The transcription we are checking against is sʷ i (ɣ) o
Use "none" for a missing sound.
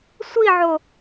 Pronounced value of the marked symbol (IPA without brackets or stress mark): ʕ